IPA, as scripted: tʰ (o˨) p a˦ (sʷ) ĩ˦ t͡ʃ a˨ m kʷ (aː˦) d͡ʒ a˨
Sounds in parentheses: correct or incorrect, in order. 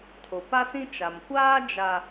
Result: correct, incorrect, correct

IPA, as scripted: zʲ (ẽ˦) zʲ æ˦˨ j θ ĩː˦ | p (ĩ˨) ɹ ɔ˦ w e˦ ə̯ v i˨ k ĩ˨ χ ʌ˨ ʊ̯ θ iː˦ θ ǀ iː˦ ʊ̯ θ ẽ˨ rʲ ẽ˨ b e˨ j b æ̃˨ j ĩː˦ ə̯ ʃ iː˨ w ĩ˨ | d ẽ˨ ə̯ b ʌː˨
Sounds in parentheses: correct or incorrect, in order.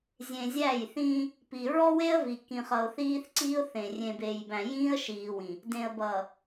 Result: incorrect, incorrect

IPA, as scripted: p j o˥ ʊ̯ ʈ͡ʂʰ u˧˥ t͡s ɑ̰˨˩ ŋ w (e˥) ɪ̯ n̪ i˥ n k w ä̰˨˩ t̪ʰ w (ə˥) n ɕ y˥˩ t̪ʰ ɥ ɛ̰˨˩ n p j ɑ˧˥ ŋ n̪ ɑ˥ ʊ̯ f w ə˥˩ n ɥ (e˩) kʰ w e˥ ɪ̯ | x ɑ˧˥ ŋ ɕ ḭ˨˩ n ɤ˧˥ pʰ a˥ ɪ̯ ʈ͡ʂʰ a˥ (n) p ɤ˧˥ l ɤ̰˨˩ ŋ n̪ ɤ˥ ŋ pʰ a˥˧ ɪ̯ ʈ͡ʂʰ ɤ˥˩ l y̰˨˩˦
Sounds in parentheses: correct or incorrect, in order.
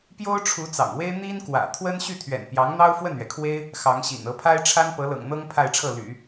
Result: correct, correct, incorrect, correct

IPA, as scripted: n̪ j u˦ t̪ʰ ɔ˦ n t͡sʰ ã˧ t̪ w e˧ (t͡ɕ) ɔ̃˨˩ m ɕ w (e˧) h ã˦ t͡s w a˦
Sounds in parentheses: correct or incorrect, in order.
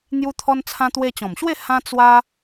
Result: correct, incorrect

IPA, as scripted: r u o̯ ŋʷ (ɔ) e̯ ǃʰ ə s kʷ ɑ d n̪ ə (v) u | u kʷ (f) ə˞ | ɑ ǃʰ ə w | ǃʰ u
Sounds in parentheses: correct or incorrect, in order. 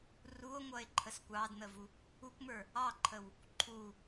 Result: incorrect, correct, incorrect

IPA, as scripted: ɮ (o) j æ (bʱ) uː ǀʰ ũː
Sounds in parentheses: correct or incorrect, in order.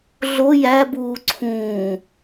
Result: correct, incorrect

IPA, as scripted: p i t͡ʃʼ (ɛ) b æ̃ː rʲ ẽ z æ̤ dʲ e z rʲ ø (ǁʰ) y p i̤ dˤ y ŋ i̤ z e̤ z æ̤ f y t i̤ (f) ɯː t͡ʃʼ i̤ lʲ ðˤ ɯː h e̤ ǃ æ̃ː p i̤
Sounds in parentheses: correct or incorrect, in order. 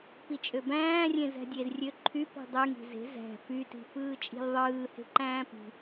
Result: incorrect, incorrect, correct

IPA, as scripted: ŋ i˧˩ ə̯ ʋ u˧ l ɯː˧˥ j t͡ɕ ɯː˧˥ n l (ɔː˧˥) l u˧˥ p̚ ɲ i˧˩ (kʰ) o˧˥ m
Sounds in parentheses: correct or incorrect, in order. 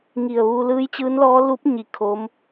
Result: correct, correct

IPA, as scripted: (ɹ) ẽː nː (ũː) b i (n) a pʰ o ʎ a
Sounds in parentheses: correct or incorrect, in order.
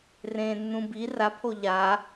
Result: incorrect, incorrect, incorrect

